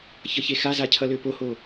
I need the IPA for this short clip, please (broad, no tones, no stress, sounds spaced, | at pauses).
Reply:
ç ʌ ç e x a z a cʰ ʌ l ø p o h o